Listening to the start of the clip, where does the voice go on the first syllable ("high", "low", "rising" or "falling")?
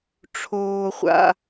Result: low